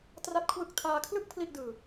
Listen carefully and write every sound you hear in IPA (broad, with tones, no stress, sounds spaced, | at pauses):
t r a˦˥ t̚ kʰ w ɯ˦˥ k̚ tʰ aː˧ kʰ l ɯ˥˩ k̚ pʰ l i˥˩ ʔ d ɯː˧